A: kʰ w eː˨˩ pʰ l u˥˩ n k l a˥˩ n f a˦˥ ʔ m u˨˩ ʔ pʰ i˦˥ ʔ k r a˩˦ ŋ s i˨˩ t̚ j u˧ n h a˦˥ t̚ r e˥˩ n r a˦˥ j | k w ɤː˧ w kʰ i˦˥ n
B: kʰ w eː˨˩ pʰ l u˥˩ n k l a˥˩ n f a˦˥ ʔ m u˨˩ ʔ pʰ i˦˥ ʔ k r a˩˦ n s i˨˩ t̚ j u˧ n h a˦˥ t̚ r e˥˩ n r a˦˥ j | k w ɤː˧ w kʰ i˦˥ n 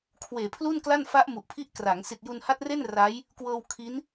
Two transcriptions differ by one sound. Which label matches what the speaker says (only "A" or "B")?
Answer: A